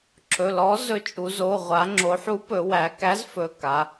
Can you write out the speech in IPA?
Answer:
ǁʰ ɵ˩˧˩ l ɔ˨˥ z ɵ˨˥ t͡ʃʼ u˩˧ z o˩˧˩ ʁʷ a˩˧ ŋ͡ǁ o˩˧ ħ u˨˥ p ɵ˩˧ w æ˩˧ k æ˨˥ z f ɵ˩˧˩ k a˩˧

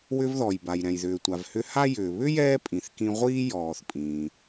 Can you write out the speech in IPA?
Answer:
w ʏ˧ v ð ɔ˩ j b a˩ j ɾ ɛ̃˩ j ð ʏː˩ tʷ a˩ v h ʏ˧ h a˥ j ʏː˩ β ʏ˥ j ɛː˥ pʼ ĩ˩ θ k ĩ˧ ʁʷ iː˥ j ɔː˩ θ pʼ ĩː˩

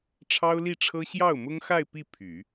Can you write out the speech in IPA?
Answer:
ʈ͡ʂʰ ɑ˥ ʊ̯ l i˥˩ ʈ͡ʂʰ ɤ˥ ɕ j ɑ˥˩ ʊ̯ m ʊ˥ ŋ x a˥˧ ɪ̯ p i˥˩ pʰ y˨˩˦

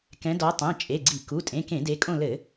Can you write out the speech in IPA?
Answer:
k ɛ̃˨˦ d ɔ˨˦ tˤ ɛ̃˩˧˩ t͡ʃʼ e˩˧˩ ɡ͡ǀ i˧˩˧ k u˩˧˩ tʼ ẽ˩˧˩ k ẽ˧˩˧ d e˨˦ kʼ õ˦˨ l ɘ˧˩˧

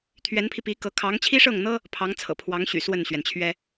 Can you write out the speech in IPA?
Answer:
t̪ʰ ɥ ɛ˧˥ n pʰ i˧ p i˧˥ k ɤ˧˥ kʰ ɑ˧˥ ŋ t͡ɕʰ i˥ ʂ ɤ˥˩ ŋ n̪ ɤ˥ | pʰ ɑ˧˥ ŋ t͡sʰ ɤ̰˨˩ pʰ w ɑ˧˥ ŋ ɕ y̰˨˩ s w ə˥˩ n ɕ ɥ ɛ˩ n t͡ɕʰ ɥ ɛ˥

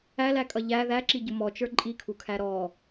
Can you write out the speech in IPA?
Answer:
æ l æ kʼ ʌ ʎ æ ð æ ǁ i ɟ ʊ m ɔ t͡ʃ ə˞ ǃʼ i kʰ u kʰ æ ɾ ɔ

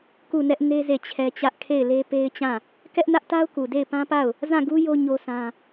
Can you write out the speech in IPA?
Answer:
k u˦˨ n ɛ˦ ʔ n e˦ z e˦˨ t͡ɕʰ ɛ˦ t͡ɕ ä˦ ʔ kʰ e˦˨ ɪ̯ l e˦ p e˦ ɪ̯ t͡ɕ ã˦˨ | k ɛ˦ ʔ n ä˦ ʔ t a˦ ʊ̯ k u˨ d e˦˨ ɪ̯ p ã˦ p a˦˨ ʊ̯ | z ã˦˨ ɡ u˦ j o˦ ɲ o˦ sʰ ã˦

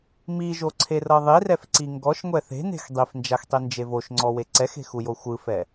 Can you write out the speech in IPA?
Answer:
m i ʒ o ǀʰ e r ɤ ðˤ i r ɛ f ǀ i ŋ ɡ ɔ ʃ ŋʷ ɛ θ e̤ n e̤ x dˤ i f n d͡ʒ a x tˤ i n d͡ʒ e v o ʃ ŋ͡ǀ ɔ w e ǀ ɛ x e̤ x u j o xʷ ɯ f ɛ

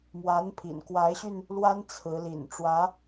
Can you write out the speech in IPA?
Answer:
m w a˧˥ n pʰ ḭ˨˩ n k w a˧˥ ɪ̯ ɕ y˧ n | l w a˥ n t͡sʰ ɹ̩˧˥ l ḭ˨˩ n ʈ͡ʂ w ä˧˥

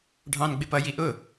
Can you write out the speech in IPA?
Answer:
ɖʱ ɑ̃ n ɡ͡b ɪ p ʌ j i ʔ ʊ

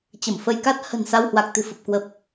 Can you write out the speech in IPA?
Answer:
t͡ɕ ə˧˩ m f ə˧ j k a˦˥ t̚ h ə̤˨˩ n s a˧ w h w a˨˩ k̚ t̪ ɨ̤˨˩ f ə˨˩ p̚ k w ə˨˩ p̚

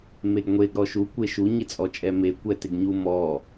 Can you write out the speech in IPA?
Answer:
m e ɡ ŋʷ e ɡ ɾ ɔ ʃ u kʷ e ʃ u ɲ ɪ t͡sʼ ɔ t͡ʃʼ ɛ m e kʷ ɛ t ɪ ɡ ɲ u m ɔ

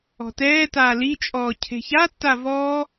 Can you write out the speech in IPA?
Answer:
ɔ̤ t ɛː t aː l i t͡ʃʼ ɔː cʰ e̤ ç a tː a v ɔː

